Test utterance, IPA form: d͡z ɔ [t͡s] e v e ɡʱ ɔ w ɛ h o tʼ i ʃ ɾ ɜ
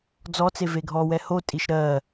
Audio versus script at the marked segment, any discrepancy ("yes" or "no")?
no